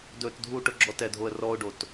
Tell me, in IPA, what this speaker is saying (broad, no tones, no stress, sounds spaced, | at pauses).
d ɵ t dʱ u ʈ ɵ ɡ͡ǁ ɔ t ɛ dʱ o ə̯ r ɔ ʊ̯ ɖ o t